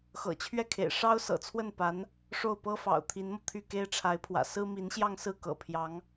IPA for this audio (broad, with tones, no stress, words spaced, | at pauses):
xɤ̰˨˩t͡ɕʰɥɛ˥˩kʰḛ˨˩ɪ̯ ʂɑ˥ʊ̯sɤ̰˨˩t͡sʰwə˥˩npa˧˥n | ʂo˥˩ʊ̯pɤ˥fɑ̰˨˩ʊ̯ t̪ʰi˧˥nmɤ˧ t̪ʰy˥˩ke˥ɪ̯ ʈ͡ʂʰa˧˥ɪ̯pʰwä̰˨˩ sɹ̩˥mi˧˥nɕjɑ˥˧ŋsɹ̩˥˩ kɤ̰˨˩pʰjɑ˧˥ŋ